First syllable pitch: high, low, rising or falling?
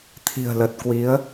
low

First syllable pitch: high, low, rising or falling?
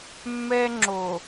high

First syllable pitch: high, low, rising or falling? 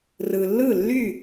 low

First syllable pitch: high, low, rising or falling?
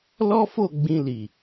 high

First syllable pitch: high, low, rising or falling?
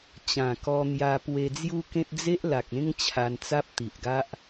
low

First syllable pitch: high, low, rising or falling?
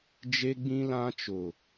high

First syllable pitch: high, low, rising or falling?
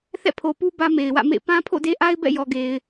falling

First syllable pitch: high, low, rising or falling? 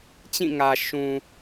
falling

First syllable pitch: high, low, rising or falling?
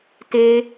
high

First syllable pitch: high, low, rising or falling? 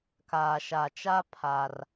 low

